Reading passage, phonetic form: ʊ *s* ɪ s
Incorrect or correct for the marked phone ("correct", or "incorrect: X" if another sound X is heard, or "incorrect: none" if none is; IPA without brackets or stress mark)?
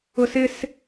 correct